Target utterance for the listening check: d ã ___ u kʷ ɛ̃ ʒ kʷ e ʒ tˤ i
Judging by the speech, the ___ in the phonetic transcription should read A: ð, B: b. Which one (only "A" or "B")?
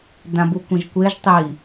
B